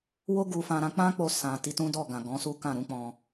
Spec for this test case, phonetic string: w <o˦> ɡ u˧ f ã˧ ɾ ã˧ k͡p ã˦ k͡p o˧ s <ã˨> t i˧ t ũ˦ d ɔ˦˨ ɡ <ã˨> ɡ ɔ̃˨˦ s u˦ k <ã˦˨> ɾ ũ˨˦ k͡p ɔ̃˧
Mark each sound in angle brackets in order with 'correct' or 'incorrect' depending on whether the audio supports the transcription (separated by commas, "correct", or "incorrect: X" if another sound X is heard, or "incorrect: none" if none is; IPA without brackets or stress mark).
correct, correct, correct, correct